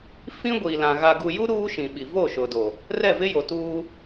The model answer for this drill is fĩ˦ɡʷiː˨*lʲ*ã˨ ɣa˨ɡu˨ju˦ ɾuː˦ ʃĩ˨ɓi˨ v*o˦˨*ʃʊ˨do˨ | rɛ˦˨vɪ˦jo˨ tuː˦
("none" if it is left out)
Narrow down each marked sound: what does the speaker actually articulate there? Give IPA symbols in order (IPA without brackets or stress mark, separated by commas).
l, o˦˨